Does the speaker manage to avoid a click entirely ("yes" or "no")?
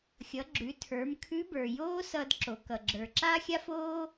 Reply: no